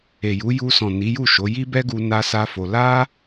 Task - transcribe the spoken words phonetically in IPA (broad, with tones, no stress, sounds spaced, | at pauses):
e˨ j u˨˦ j u˧ s ɔ̃˨ n i˨˦ j u˦˨ ʃ o˨˦ j i˦ b ɛ˦ ɡ u˧ n a˦ s a˦ f o˧ l a˦